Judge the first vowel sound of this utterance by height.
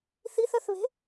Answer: high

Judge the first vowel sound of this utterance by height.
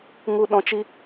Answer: high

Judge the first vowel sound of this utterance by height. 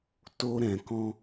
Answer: mid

